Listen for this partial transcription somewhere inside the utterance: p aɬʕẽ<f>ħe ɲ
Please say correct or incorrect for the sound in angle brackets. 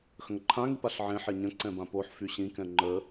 incorrect